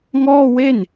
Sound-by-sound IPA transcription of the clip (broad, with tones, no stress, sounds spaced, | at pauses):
ŋ ɔː˥˩ w e˥˩ n